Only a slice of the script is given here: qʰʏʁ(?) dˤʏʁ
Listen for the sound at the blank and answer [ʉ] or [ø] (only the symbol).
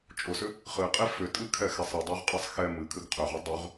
ø